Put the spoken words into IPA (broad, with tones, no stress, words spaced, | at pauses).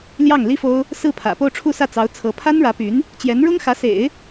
ljɑ˥˩ŋli˥fo˥ʊ̯ | sɹ̩˥˩pʰä̰˨˩ po˥˧ʊ̯ʈ͡ʂʰu˥˧sä˥˩ t͡sɑ˧˥ʊ̯t͡sʰɤ˧˥ pʰa˥nɻä˧˥py˧˥n | t͡ɕjɛ˧˥nɻʊ˥ŋxä˧˥sḛ˨˩˦ɪ̯